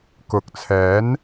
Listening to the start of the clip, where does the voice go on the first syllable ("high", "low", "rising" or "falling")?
rising